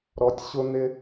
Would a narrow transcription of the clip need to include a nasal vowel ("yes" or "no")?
no